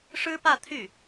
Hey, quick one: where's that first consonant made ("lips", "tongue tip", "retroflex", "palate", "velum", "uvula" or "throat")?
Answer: retroflex